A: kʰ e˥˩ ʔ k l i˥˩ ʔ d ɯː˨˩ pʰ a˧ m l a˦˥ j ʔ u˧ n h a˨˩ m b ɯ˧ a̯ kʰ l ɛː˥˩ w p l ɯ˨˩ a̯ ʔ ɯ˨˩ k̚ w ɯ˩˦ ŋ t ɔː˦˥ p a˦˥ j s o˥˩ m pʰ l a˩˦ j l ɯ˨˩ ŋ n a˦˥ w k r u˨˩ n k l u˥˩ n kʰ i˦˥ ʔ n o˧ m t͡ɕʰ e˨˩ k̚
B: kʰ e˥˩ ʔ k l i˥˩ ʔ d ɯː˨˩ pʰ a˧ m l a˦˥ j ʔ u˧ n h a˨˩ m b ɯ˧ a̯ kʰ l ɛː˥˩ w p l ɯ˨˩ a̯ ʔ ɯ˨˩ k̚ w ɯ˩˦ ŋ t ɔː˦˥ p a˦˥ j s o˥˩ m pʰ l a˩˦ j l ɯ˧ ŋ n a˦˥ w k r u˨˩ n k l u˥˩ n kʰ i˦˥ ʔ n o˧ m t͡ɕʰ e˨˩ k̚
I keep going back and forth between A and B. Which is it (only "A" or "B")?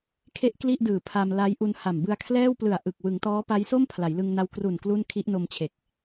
B